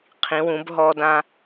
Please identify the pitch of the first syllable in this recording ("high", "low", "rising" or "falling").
rising